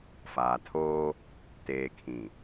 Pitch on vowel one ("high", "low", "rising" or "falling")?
low